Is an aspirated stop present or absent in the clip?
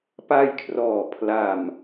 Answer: present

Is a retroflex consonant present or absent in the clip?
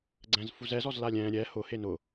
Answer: absent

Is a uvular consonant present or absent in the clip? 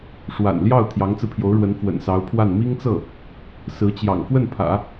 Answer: absent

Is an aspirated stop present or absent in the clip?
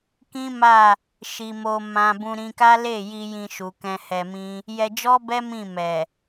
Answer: absent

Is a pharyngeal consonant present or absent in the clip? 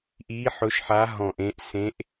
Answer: present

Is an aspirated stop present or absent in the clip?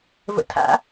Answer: present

